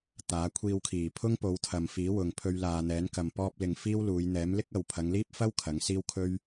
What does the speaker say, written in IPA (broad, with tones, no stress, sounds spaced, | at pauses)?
t̪ aː˨˥ kʷʰ iː˧ w kʰ iː˨˩ pʰ ʊ˥ ŋ p o˨˧ w t̪ʰ ɐ˨ m f iː˨˥ w ʊ˨ ŋ pʰ ɵ˧ ɥ l aː˨ n̪ ɛː˨˥ n k ɐ˨ m p ɔː˧ p̚ l ɪ˨ ŋ f iː˥ w l uː˨˧ j n̪ ɛː˨˥ m l ɪ˥ k̚ ɐ˨ w pʰ ɐ˨˧ ŋ l iː˥ p̚ f ɐ˥ w kʰ ɐ˨˥ ŋ s iː˥ w kʰ ɵ˥ ɥ